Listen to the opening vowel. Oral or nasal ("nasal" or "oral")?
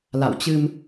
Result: oral